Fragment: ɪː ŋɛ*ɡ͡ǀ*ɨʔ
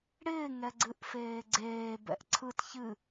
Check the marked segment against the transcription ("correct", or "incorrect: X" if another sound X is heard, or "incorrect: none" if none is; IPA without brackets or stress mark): correct